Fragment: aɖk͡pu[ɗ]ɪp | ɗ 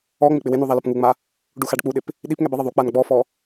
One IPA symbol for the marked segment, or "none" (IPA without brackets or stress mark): ɗ